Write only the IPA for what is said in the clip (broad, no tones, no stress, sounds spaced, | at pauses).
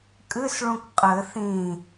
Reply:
kʼ ɨ s ɭ ũ k qʼ ɘ θ ĩ